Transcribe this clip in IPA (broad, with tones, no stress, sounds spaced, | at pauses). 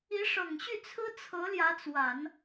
i˧˥ ʂ ɤ˨˩ ŋ ɕ y˥˩ t͡sʰ ɹ̩˥ t͡sʰ ɤ˧˥ l j ä˧˥ t͡s w a˨˩˦ n